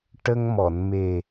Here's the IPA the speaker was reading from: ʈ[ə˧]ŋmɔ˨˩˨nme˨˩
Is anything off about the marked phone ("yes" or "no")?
no